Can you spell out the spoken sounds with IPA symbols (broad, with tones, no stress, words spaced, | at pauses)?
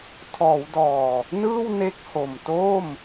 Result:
tʰɔː˩˦wdɔː˨˩ | nɯː˥˩wne˦˥k̚ho˨˩mto˥˩m